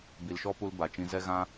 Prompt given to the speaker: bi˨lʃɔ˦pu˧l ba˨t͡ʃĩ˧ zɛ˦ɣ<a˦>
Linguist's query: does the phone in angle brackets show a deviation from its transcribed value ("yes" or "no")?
yes